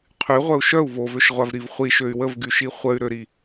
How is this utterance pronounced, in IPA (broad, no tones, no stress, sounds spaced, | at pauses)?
qʰ y ʁʷ œ u̯ ʃ œ u̯ v o v ø ʃ ʁʷ a v ɾ i v χʷ i ʃ ø y̯ w ə v ɡ y ʃ i χʷ ə y̯ ɾ ø ɾ i